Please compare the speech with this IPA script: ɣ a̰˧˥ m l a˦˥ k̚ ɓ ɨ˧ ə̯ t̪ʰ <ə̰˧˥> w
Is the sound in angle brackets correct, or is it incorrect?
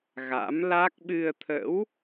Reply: correct